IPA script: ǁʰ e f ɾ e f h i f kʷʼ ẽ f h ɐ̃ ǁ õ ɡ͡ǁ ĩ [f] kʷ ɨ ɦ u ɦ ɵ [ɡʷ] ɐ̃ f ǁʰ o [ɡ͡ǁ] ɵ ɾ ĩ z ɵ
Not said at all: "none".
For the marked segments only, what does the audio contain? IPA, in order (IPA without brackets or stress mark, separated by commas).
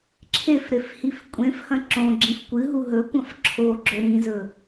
f, kʷ, ɡ͡ǁ